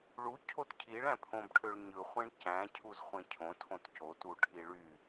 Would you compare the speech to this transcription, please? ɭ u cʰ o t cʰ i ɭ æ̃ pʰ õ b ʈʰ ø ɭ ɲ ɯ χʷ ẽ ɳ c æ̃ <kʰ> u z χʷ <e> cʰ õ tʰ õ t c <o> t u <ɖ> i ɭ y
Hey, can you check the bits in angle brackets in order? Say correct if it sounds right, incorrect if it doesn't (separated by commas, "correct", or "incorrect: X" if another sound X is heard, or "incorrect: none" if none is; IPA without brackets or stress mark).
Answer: incorrect: cʰ, incorrect: ẽ, correct, incorrect: ʈʰ